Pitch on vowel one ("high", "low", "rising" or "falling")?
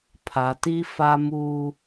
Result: low